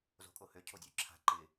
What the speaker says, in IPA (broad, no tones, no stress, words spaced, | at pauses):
zo̤kʼohø cʰodʲøǁʰa̤ ǃɪ